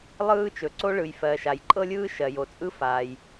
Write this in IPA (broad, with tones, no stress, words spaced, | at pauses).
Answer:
lˠɯː˥t͡ʃɵ˩ǀo˥ɭɯ˩j fɜ˩ ʃa˩jǃʼɤ˥lʲɯː˥ʃɜ˩ jo˩ t͡sʼɯ˥ faː˩j